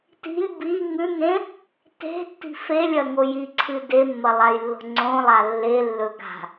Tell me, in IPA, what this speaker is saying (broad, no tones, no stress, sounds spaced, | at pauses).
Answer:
t i̤ lʲ b i ŋ ʉ ŋ ẽ | t e̤ tː i̤ f e lʲ ɐ ŋ o j i ǀʰ ɨ d e mː ɐ lˠ a j lː o̤ ŋ͡ǀ õ lˠ a lː e lː ɵ ɡ a̤